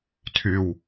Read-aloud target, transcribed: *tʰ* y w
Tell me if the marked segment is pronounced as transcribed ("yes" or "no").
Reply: yes